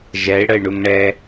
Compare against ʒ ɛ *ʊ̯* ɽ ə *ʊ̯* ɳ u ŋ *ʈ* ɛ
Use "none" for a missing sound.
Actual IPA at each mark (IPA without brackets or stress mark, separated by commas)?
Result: ɪ̯, ɪ̯, ɳ